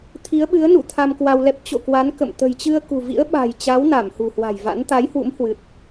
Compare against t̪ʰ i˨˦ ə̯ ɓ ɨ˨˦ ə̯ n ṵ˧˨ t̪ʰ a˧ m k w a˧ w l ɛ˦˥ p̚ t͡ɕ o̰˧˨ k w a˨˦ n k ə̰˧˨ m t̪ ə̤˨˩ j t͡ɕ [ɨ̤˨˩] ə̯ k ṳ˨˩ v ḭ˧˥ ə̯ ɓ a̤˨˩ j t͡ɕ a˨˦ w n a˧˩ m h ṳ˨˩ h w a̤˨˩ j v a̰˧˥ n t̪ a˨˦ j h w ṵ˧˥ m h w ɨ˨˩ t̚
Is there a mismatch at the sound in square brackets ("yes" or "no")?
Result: yes